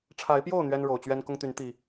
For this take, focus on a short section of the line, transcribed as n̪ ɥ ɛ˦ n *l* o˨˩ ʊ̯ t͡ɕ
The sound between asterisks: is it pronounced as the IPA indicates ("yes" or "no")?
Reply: no